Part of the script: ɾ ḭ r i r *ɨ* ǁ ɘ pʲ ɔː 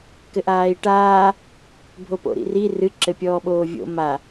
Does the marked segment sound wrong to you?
no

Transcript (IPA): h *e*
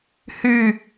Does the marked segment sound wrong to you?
yes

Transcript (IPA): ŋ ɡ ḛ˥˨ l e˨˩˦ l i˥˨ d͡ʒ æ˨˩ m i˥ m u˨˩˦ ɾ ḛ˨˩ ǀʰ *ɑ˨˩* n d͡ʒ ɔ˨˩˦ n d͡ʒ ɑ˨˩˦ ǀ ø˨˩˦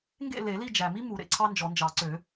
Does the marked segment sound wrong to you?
yes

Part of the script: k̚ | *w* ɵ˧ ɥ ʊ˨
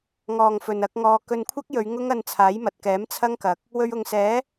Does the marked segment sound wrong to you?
no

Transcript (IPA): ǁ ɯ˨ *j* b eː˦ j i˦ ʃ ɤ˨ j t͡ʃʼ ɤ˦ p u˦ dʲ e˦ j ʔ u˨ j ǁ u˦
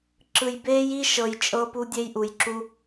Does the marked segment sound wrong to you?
no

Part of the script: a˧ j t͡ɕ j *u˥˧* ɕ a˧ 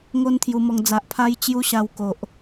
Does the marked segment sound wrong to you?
yes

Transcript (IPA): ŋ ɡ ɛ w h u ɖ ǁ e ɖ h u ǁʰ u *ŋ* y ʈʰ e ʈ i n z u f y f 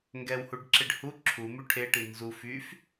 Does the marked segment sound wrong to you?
yes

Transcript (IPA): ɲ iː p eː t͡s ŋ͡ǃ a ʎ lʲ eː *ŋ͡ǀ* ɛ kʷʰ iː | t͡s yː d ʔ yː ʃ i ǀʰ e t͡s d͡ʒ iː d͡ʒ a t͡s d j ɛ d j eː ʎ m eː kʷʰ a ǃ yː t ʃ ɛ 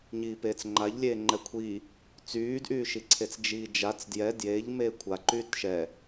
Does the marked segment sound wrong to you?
yes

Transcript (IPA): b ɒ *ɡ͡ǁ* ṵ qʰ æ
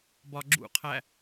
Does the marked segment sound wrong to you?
no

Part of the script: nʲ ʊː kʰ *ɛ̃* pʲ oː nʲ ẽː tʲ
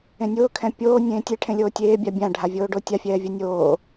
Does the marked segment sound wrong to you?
no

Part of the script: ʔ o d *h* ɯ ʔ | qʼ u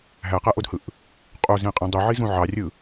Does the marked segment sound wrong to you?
no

